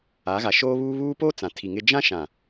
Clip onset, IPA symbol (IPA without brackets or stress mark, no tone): a